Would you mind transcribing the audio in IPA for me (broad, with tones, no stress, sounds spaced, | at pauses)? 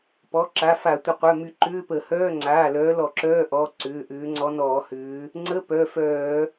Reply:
p ɔ˩˧˩ ǁ a˩˧˩ f a˧˩˧ tʷ ɪ˩˧˩ qʷ œ˩˧˩ m y˧˩˧ ǃ ʏː˧˥˧ p ə˧˩˧ h œː˧˥˧ ŋ͡ǀ aː˩˧˩ l œː˨˦ l ɔ˧˩˧ ǁ œː˧˥˧ ʔ ɔ˩˧˩ ǀ ʏː˩˧˩ ʔ ʏː˨˦ ŋ͡ǀ ɔ˨˦ n ɔː˧˩˧ h ʏː˨˦ | ŋ͡ǀ ə˧˥˧ p œ˩˧˩ f œː˧˩˧